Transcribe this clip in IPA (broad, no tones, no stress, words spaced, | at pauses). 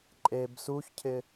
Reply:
ǃʼeb suçcʰɪ